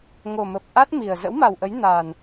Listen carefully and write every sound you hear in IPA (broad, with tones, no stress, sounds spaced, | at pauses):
ŋ o˨˩ m ə˨˩ p̚ ʔ a˦˥ t̚ m i˨˩ ə̯ z ə̰˧˥ w m a˨˩ w ʔ ə˨˦ j n a˨˩ n